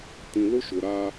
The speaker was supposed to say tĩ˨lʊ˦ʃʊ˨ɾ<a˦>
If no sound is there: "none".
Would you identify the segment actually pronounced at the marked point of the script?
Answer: a˦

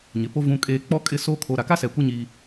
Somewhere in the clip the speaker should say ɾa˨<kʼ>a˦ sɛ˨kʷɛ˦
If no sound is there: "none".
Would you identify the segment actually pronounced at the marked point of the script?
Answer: k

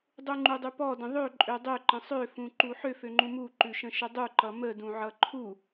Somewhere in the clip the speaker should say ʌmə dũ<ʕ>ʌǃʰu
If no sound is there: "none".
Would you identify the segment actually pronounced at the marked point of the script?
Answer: ʕ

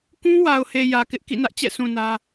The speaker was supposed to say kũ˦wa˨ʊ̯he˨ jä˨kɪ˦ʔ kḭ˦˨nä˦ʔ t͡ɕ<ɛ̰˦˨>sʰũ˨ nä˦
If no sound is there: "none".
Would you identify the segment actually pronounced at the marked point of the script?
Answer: ɛ̰˦˨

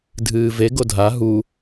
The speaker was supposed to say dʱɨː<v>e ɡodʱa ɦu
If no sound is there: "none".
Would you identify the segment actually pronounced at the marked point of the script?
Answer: v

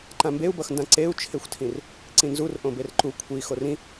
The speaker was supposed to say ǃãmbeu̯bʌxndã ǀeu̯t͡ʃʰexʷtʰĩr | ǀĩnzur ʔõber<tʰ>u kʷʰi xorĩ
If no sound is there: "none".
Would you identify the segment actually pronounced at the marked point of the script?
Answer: ǃ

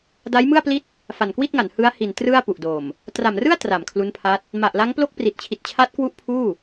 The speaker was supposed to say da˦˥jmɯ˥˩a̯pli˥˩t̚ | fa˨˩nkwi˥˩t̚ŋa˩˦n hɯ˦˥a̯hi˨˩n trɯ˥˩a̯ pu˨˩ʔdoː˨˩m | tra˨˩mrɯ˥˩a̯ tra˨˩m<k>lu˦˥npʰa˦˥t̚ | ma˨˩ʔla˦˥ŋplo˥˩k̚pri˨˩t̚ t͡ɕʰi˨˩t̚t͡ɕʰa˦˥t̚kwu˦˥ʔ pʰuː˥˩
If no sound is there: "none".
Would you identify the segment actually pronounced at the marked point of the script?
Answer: kʰ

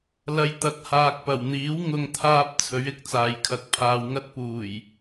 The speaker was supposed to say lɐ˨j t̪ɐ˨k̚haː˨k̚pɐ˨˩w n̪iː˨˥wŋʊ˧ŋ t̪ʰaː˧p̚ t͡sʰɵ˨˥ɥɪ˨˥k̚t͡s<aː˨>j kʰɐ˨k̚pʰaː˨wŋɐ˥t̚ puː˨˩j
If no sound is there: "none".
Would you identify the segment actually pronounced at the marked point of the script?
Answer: aː˨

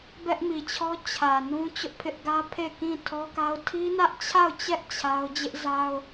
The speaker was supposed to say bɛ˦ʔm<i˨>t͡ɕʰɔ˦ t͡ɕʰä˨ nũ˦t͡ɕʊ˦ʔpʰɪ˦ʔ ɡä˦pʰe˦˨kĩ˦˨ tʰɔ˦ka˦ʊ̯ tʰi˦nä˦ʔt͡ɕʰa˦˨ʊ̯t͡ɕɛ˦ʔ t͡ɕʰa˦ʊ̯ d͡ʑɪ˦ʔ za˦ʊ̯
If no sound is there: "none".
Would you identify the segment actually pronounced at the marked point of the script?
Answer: i˨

